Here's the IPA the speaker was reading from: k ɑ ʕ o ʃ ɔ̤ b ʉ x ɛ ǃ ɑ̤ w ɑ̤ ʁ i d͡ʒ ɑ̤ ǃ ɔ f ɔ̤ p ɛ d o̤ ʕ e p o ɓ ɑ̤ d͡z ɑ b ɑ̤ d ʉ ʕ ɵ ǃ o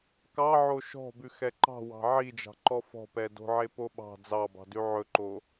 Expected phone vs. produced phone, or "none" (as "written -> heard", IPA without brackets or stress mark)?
ʁ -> ʕ